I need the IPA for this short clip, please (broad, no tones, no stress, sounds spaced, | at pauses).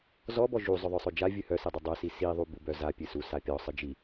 z ɔ b ɔ ʒ u zˤ œ ðˤ œ sˤ œ d͡ʒ a vʲ ɨ h œ s i dˤ ɨ dˤ œ s i s i ðˤ u b u b œ z a pʲ ɨ s u s a pʲ ɔ sˤ ɨ d͡ʒ i